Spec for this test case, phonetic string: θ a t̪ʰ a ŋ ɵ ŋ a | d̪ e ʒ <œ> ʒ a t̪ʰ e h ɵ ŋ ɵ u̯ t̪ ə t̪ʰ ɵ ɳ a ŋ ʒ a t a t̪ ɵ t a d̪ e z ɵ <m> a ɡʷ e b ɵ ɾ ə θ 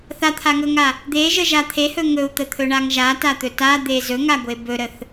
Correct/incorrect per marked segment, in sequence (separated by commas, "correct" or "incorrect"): incorrect, incorrect